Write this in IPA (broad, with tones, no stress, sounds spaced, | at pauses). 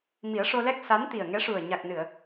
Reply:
m i˨˩˦ ə̯ ʂ o˧ l ɛ˦˥ k̚ s a˧˥ n t̪ i˨˩ ə̯ ŋ ɛ˧˥ ʂ u˨˩ ə̯ ɲ a˨˩ k̚ n ɨ˨˩˨ ə̯